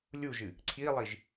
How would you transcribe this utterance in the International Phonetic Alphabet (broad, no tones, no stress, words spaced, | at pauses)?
lʲuʒɨ | ǀʰilˠiʒ